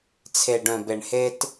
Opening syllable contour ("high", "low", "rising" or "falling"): low